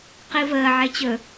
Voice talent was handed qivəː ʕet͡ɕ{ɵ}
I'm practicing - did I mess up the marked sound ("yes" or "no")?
no